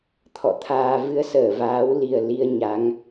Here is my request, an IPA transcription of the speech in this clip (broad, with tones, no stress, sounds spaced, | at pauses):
t̪ʰ ɔ̰˧˨ t̪ʰ aː˧ v ɨ˧ ə̯ s əː˧˩ v aː˨˦ w l i˨˩ ə̯ l i˧ ə̯ ɲ a˨˦ ŋ